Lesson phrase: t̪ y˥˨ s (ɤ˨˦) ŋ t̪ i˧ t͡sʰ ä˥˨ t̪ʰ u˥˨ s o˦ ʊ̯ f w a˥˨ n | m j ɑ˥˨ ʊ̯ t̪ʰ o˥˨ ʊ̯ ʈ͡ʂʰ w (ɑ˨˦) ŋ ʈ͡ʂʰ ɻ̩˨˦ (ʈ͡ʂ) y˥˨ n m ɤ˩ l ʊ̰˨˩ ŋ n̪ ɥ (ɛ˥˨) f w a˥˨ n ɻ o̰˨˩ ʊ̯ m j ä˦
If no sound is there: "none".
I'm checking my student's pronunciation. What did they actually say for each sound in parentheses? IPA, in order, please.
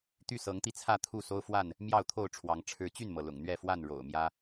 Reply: ɤ˨˦, ɑ˨˦, t͡ɕ, ɛ˥˨

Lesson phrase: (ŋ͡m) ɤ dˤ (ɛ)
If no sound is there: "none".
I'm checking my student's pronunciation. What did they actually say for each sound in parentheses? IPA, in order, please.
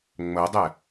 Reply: ŋ͡m, ɛ

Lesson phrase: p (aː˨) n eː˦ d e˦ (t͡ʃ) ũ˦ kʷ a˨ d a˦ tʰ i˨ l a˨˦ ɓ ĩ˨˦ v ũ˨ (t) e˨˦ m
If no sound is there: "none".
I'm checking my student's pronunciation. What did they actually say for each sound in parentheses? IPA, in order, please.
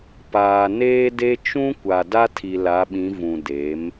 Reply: aː˨, t͡ʃ, d

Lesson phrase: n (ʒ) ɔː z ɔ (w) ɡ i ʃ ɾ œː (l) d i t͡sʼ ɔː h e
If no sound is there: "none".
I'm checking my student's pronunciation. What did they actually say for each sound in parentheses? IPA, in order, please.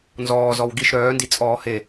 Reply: z, w, n

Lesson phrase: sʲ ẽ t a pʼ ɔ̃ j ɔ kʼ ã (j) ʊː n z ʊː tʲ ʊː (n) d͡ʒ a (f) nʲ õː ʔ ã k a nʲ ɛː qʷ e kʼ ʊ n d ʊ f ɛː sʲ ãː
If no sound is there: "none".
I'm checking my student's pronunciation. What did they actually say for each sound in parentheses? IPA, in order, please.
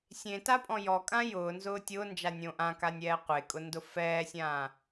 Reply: j, n, none

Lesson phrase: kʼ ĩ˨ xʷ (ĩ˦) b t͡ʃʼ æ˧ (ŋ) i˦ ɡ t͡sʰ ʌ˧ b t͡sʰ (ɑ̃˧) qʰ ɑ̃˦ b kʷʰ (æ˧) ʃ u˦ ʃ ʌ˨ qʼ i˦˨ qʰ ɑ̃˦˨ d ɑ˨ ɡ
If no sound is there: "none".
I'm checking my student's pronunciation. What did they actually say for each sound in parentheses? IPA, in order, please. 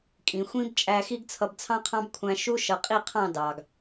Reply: ĩ˦, x, ɑ̃˦, æ̃˧

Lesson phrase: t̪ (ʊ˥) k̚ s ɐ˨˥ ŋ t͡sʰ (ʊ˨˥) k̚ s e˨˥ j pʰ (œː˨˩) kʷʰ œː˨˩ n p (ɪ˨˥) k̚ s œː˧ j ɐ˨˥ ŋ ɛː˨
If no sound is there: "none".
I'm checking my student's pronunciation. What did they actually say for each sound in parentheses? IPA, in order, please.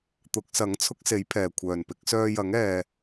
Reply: ʊ˨˥, ʊ˥, ɛː˨˩, ɪ˨˥

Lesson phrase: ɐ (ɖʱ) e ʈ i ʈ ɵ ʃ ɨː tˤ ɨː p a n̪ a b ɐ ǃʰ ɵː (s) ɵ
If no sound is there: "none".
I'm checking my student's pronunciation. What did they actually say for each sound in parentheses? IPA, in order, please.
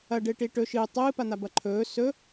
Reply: ɖ, s

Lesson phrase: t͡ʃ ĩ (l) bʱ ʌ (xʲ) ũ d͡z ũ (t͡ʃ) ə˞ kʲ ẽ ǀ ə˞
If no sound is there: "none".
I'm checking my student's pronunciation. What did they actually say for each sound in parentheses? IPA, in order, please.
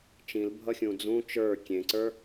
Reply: l, xʲ, t͡ʃ

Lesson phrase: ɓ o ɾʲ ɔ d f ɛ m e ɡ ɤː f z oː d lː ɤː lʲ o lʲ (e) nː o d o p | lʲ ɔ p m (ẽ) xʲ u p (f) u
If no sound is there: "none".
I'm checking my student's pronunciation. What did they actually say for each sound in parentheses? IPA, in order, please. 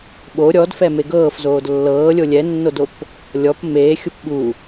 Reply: ɛ, e, ɓ

